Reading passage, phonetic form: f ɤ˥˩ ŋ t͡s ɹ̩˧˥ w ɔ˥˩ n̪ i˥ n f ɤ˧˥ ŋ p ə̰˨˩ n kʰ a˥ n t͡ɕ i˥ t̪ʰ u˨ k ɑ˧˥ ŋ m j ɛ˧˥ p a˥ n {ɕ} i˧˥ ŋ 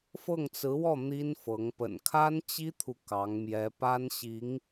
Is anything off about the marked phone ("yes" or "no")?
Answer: no